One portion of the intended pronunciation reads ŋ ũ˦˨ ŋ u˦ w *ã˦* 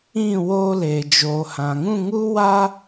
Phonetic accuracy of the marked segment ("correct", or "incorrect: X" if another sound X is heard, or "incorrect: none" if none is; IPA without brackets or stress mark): incorrect: a˦